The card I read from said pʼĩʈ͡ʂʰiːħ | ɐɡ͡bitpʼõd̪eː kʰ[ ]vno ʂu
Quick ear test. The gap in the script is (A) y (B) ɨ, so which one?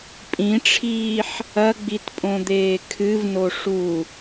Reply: B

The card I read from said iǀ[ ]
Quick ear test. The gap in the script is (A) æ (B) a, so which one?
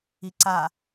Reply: B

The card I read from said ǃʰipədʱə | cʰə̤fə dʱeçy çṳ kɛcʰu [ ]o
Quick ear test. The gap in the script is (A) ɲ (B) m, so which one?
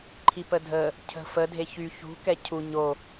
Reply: A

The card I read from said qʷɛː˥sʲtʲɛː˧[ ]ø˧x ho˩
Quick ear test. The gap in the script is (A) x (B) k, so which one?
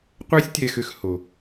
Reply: A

